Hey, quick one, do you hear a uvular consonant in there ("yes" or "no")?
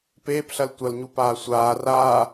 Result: no